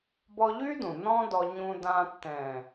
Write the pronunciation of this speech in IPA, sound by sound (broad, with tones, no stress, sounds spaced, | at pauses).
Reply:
b ɔ˧ ʎ y˦ d ũ˨ n ɔ̃˦ d ɔ˧ ɲ ũ˧ d ã˧ tː ɛ̃ː˨